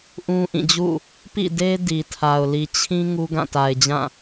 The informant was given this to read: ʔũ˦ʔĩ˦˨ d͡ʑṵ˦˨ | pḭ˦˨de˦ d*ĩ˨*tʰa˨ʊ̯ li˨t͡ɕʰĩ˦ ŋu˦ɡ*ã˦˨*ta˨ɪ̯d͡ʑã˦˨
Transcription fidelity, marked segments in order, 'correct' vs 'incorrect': incorrect, correct

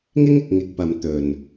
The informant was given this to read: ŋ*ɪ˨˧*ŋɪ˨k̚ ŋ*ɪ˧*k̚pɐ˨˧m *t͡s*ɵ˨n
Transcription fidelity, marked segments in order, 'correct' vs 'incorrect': incorrect, correct, incorrect

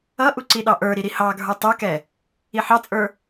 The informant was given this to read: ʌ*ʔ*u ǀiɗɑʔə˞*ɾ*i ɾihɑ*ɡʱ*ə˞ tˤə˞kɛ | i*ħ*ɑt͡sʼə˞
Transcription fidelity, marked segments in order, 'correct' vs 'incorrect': correct, correct, correct, correct

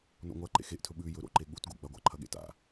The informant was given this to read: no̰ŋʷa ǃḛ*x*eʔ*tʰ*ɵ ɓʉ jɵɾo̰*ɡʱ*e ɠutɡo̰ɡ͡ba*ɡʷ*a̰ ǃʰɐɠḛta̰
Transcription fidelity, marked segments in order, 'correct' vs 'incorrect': correct, correct, incorrect, correct

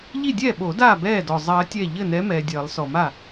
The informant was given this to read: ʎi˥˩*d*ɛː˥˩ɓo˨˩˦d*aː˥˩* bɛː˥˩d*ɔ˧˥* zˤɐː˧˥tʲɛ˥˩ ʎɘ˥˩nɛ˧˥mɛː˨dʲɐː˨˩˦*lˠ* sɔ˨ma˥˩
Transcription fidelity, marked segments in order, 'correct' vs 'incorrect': incorrect, correct, incorrect, correct

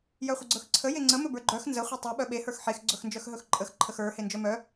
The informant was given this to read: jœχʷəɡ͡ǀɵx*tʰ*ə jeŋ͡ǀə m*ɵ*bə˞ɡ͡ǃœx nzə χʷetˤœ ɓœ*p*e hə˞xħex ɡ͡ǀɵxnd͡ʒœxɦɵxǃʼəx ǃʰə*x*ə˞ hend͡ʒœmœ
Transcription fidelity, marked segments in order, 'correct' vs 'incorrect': incorrect, correct, incorrect, correct

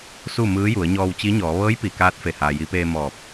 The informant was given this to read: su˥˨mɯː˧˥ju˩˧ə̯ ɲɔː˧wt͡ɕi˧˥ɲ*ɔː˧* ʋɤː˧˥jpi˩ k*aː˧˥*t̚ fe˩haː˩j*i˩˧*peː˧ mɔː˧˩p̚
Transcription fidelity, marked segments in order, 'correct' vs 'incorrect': incorrect, correct, correct

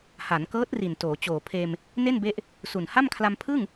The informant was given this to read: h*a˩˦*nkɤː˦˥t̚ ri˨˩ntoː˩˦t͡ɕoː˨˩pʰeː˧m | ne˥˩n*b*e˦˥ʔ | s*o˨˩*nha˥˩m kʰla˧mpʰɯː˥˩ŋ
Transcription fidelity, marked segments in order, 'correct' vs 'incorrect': correct, correct, incorrect

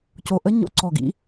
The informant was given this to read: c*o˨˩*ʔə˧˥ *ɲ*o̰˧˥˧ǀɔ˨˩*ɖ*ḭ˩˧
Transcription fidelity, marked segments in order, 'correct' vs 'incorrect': correct, correct, incorrect

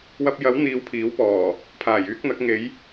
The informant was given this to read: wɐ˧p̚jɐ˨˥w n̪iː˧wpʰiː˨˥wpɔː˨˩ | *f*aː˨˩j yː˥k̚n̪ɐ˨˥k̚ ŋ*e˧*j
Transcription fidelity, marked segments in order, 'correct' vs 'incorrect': incorrect, incorrect

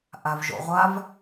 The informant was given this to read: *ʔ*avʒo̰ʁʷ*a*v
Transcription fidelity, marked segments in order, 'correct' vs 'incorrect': correct, correct

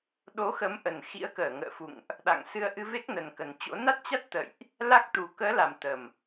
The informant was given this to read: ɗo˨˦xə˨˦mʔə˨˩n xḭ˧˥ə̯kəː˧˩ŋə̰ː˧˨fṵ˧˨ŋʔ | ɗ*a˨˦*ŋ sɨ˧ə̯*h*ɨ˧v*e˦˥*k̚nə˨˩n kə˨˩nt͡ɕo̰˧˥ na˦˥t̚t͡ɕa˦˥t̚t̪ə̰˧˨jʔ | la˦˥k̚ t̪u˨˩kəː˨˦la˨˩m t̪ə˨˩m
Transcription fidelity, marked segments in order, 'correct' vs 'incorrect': incorrect, incorrect, correct

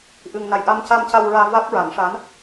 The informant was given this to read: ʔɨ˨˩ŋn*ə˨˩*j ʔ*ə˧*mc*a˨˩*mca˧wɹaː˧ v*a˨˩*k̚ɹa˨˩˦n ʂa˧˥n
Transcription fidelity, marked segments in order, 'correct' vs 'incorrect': incorrect, incorrect, incorrect, incorrect

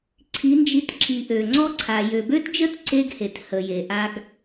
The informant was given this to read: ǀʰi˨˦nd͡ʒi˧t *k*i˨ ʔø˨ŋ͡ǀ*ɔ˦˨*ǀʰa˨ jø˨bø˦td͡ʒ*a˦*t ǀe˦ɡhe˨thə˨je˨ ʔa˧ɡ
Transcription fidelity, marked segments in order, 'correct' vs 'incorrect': incorrect, incorrect, incorrect

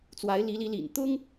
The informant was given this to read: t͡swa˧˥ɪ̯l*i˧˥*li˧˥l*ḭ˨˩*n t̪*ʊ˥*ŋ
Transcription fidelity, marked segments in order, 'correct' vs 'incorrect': correct, correct, correct

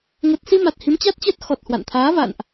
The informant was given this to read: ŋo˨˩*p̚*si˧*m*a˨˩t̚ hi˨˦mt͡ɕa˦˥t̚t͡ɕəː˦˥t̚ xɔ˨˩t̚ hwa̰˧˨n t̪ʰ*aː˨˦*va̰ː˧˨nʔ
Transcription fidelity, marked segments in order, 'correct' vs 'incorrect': incorrect, correct, correct

